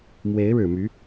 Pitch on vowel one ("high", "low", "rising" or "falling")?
rising